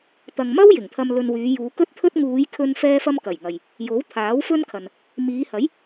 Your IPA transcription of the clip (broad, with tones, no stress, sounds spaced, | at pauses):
t̪ ɐ˨ ŋ m ɐ˥ w j ɪ˨˩ ŋ t̪ʰ ɐ˧ m l ɵ˧ n w yː˨˧ j uː˨˧ k ɵ˥ t̚ t̪ʰ ɵ˥ t̚ ŋ uː˨˧ j kʰ ɵ˧ n f ɛː˥ f ɐ˥ m k ɐ˨˩ j ŋ ɐ˨ j | j o˨˥ w t̪ʰ aː˨˥ w f ɵ˥ n kʰ ɐ˨ n | m iː˨˧ h ɐ˨˥ j